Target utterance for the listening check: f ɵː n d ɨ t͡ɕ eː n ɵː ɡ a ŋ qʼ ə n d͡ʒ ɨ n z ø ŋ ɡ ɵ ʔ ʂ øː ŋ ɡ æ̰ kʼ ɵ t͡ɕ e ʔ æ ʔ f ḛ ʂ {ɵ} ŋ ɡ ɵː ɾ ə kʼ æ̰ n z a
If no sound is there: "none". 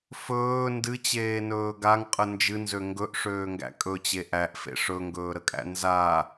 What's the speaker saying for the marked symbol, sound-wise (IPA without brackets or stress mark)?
ɵ